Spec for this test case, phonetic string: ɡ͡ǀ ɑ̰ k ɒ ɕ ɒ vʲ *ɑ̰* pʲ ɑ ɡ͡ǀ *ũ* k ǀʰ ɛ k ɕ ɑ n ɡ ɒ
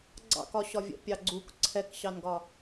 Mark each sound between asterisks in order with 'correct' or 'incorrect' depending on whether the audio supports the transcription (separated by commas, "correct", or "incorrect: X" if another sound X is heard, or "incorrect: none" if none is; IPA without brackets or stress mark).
incorrect: ə̰, incorrect: u